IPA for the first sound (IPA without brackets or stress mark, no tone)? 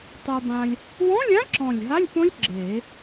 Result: tˤ